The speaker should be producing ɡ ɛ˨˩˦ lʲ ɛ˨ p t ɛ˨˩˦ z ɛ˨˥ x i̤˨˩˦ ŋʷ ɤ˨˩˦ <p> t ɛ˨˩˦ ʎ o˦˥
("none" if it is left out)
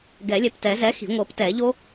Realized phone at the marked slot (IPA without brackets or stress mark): p